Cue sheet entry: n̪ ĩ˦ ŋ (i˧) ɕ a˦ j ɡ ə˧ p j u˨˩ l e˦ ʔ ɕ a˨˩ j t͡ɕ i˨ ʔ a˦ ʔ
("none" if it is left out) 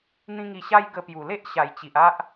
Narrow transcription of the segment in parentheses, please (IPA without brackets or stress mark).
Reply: i˧